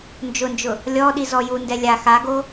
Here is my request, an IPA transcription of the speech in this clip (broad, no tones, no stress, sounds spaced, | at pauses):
n d͡ʒ ʊ n d͡ʒ ʊ | lʲ ɔ ɗ i z ɔ j u n d ɛ lʲ a x a ɡ o